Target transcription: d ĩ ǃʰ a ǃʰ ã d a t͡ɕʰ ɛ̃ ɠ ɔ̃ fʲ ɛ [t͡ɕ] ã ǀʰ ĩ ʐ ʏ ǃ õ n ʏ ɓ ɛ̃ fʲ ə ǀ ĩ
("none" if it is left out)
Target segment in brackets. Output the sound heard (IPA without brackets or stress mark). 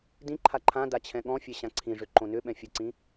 ɕ